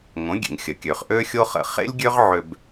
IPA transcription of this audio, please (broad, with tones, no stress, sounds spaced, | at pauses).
ŋ õ˩˥ ɡʲ ḛ˩ ŋ xʲ ə˩ kʲ ø˩ χ ʔ ø˥ xʲ o˥ χ ə̰˥˩ χ ḛ˥ lʲ ɡʲ ø˥ ʁ ʕ ø˧ b